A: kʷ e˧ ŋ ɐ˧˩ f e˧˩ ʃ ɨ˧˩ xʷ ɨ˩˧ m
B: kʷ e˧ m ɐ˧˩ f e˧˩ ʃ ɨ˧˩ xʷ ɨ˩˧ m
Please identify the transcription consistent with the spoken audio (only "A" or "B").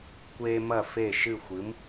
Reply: B